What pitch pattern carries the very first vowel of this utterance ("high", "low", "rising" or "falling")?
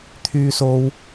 high